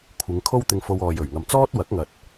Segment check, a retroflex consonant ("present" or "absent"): absent